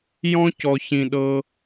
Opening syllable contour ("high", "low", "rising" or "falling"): high